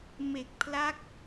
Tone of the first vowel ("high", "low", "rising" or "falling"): low